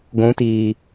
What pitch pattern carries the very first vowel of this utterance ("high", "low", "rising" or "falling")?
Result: rising